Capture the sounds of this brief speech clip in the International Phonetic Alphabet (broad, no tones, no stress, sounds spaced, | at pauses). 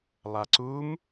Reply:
lˠ a ǀ u m